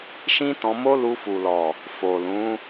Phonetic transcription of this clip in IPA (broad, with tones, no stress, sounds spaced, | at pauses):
ʃ ĩ˦ t ɔ̃˧ m o˦ l u˧ f u˨ l ɔ˨ | f o˨ l ũ˨˦